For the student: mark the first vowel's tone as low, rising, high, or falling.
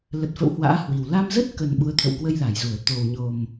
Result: low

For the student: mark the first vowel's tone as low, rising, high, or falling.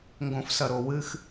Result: low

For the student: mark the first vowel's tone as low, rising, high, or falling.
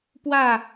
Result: falling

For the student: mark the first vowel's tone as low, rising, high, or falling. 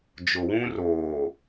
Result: low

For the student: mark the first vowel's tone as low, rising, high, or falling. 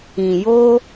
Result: low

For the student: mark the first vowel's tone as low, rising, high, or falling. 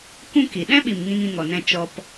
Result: high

